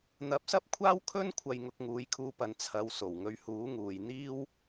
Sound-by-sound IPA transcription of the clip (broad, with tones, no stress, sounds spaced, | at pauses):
n̪ ɐ˨˥ p̚ s ɐ˥ p̚ kʷʰ aː˥ w kʰ ɵ˥ n kʷʰ ɐ˨ j ŋ ʊ˨ k̚ ŋ uː˨˧ j kʰ uː˧ p ɐ˨ n t͡sʰ ɐ˨˧ w s o˨˩ w ŋ ɵ˧ ɥ h uː˨˥ ŋ uː˨ j n̪ iː˥ w